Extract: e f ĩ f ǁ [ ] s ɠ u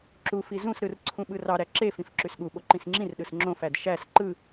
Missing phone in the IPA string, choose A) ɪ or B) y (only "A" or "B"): B